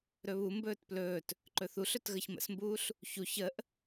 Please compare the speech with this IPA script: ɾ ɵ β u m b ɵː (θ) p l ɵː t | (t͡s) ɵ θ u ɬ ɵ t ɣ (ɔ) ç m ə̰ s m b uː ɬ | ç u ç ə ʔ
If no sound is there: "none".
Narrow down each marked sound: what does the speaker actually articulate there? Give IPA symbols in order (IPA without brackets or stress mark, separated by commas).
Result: t, ǃ, ə